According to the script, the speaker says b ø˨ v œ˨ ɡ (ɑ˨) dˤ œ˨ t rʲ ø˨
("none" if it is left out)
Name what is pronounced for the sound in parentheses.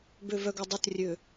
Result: ə˨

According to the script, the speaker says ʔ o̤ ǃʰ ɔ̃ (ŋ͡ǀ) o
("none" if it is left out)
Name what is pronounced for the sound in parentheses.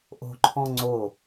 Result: ŋ͡ǀ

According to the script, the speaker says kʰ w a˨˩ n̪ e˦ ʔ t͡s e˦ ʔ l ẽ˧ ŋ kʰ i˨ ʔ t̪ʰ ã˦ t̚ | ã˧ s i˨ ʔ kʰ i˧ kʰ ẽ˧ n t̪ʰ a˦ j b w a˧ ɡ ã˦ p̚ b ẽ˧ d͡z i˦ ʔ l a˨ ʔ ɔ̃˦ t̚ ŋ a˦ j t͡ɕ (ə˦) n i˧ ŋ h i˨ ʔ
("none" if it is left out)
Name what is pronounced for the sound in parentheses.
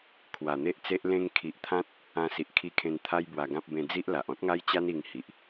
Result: a˦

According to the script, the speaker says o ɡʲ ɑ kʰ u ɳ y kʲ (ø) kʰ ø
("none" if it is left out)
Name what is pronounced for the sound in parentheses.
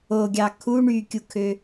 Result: u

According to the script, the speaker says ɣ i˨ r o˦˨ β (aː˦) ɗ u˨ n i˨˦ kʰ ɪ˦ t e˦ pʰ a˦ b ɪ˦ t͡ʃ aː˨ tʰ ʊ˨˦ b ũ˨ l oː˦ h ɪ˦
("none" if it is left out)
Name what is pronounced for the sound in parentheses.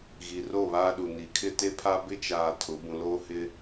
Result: aː˦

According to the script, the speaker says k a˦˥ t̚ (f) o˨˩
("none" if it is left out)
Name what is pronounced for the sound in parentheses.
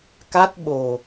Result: ɓ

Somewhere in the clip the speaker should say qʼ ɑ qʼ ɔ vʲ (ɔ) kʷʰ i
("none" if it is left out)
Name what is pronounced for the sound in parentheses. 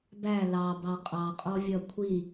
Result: ʌ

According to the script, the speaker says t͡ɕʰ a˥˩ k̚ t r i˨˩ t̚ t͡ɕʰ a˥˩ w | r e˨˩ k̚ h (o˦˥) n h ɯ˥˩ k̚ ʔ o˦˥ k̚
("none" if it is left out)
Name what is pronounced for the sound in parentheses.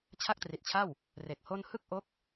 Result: o˥˩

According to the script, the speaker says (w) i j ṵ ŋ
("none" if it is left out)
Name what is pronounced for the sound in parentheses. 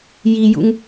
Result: j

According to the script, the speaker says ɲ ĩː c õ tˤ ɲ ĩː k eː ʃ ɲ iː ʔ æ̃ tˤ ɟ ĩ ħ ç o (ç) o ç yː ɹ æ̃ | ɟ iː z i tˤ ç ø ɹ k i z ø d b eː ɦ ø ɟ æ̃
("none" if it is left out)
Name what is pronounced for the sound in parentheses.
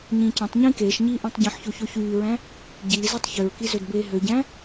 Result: ç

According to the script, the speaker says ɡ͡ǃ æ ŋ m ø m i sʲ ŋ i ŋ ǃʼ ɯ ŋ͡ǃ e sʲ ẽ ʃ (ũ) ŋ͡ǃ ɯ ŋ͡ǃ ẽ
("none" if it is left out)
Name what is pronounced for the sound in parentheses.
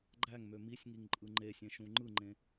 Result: ũ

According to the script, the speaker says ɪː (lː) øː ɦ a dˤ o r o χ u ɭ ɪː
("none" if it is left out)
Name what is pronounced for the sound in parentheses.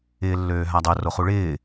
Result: lː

